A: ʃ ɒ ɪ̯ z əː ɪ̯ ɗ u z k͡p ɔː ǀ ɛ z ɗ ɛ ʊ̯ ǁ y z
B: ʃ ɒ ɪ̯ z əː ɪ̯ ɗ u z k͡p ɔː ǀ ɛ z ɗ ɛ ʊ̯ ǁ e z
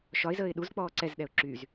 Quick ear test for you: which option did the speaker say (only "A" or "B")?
A